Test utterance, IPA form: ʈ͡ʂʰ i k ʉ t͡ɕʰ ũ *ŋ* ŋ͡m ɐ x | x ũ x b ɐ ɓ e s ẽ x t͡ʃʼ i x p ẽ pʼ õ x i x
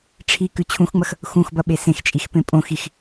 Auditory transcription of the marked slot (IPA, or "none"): x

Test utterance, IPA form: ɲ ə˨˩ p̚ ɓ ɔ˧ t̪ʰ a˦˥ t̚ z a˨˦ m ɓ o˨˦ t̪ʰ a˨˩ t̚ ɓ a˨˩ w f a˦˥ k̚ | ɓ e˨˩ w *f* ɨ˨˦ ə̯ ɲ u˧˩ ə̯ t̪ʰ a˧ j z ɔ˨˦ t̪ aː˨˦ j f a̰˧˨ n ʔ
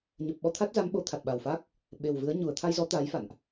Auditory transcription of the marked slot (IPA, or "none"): v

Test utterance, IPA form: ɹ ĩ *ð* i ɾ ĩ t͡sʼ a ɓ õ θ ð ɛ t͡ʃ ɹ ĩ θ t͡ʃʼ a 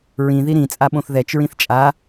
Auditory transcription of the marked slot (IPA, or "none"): ð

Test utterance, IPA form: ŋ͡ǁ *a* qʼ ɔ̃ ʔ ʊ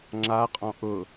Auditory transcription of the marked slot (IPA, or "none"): a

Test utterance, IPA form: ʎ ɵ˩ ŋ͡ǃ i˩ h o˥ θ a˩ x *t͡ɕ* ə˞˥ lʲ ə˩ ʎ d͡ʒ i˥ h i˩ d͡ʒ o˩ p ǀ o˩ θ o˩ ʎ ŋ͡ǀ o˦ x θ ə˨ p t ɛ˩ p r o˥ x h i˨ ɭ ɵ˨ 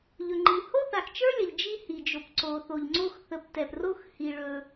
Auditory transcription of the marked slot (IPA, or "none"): t͡ʃ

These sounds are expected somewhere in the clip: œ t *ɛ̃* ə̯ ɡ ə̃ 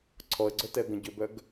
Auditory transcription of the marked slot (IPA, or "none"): ɛ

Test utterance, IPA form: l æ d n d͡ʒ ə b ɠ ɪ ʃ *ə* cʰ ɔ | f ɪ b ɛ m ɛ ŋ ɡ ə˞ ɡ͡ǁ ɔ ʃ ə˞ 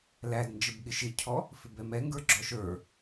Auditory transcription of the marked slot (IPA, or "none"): ɪ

